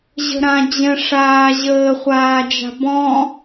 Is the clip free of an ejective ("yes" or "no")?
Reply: yes